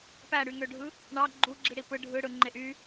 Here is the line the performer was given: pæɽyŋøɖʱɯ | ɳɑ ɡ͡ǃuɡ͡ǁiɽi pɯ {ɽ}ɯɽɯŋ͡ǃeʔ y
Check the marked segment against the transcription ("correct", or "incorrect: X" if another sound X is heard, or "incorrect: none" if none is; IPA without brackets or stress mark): incorrect: ɖʱ